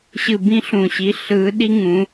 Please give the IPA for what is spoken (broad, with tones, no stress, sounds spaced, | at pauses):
ɕ ɯ˦˨ b ĩ˥ ɬ ũ˦˨ ɕ i˧˥ ɬ ɯː˧˥ ɗ i˥ ŋ ũ˧˥